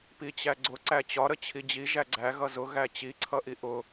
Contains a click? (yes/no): yes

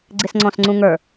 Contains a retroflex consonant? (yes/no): no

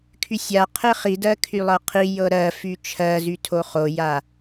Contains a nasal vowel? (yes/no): no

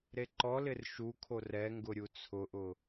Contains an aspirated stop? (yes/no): yes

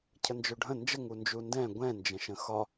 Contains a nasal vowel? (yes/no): yes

